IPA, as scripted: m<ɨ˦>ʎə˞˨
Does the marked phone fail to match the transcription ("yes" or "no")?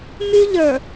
yes